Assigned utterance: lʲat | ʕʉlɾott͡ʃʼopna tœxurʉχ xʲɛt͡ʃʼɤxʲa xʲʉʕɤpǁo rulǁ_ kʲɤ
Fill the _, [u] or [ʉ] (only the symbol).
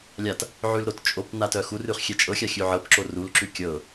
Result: ʉ